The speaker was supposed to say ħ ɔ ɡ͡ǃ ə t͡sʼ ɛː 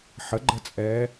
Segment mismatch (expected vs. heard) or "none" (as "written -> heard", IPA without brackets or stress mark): ɔ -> ə